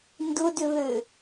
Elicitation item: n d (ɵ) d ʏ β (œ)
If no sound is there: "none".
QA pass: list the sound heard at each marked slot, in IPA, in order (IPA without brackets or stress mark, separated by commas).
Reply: ʊ, ø